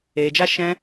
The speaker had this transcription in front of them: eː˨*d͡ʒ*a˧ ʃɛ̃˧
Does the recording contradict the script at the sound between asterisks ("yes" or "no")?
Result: no